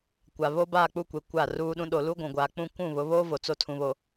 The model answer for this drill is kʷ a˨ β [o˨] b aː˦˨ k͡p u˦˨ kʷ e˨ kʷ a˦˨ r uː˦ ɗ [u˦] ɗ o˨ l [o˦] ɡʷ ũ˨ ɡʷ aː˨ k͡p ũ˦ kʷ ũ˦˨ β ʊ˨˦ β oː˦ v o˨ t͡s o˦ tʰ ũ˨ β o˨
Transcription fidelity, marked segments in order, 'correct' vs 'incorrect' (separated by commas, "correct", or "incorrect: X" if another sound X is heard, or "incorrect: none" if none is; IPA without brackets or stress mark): incorrect: o˦, incorrect: ũ˦, incorrect: u˦